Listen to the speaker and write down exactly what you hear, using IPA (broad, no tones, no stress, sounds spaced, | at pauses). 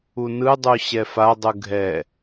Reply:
u n ɯ dˤ u ɕ ɛ f a dˤ ɯ ɡʱ ɛ